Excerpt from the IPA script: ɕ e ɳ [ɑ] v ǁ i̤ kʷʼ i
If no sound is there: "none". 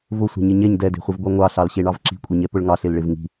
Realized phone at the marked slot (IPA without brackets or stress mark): ɑ